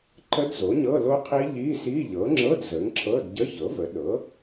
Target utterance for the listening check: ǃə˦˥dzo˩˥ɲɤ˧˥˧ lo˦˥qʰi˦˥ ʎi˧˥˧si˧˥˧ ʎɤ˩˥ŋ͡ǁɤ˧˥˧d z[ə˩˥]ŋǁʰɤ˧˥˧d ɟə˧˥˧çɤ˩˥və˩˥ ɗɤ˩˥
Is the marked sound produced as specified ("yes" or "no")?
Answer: yes